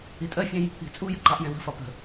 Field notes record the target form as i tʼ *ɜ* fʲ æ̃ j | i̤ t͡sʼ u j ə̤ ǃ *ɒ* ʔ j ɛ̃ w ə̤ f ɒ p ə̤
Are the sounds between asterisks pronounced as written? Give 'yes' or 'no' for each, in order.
yes, no

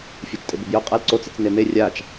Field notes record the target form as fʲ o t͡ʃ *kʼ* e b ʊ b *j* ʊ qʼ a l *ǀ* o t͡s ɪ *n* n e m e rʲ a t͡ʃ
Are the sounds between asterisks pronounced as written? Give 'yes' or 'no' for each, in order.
no, yes, yes, no

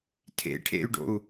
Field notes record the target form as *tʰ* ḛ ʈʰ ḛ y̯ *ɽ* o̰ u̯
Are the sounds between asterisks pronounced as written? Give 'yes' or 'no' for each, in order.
yes, no

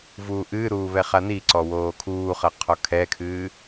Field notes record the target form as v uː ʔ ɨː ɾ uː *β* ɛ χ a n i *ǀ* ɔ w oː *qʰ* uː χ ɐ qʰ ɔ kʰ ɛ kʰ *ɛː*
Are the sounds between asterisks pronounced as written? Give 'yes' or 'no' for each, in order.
yes, yes, no, no

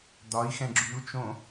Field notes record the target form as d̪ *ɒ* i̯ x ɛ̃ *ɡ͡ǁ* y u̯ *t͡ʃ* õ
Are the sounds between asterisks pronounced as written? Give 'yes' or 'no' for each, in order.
yes, yes, yes

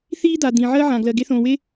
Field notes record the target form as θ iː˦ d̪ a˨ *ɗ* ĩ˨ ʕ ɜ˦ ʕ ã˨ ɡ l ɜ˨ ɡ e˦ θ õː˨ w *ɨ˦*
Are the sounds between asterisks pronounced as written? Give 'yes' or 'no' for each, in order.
no, no

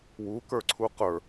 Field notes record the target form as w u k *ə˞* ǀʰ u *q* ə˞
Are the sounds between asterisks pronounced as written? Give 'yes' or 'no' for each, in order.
yes, yes

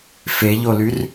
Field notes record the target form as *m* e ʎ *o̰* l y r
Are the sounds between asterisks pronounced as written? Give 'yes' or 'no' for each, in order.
no, no

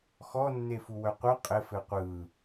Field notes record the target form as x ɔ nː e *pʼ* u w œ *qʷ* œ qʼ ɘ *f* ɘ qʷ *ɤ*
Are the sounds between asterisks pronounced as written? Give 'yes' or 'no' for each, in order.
no, yes, yes, no

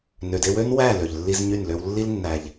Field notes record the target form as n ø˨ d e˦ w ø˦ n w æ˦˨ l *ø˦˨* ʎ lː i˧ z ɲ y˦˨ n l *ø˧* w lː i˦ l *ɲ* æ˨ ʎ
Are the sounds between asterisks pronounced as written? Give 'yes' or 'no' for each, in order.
no, yes, no

